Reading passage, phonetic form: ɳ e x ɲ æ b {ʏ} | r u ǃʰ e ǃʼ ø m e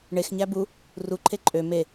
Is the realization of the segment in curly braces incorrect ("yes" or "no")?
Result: yes